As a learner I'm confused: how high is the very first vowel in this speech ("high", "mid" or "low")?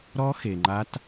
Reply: mid